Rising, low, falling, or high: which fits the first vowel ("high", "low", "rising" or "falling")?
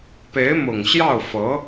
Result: rising